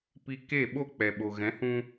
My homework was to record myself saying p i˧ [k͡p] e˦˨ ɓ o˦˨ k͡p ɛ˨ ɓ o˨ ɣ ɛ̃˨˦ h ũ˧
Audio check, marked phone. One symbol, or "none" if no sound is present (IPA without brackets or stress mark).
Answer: k